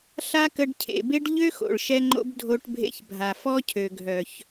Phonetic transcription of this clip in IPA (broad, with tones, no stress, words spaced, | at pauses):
ɬa˦kə˧ɖcʰḛ˨be˦ɖ ʎø˦xo̰˨ɭʃɛ˧ŋ͡ǃo̰˧b dʱo˧ʈbʱḛ˧çbʱa˨fɔ˦ cʰø˨ɡʱœ˨ç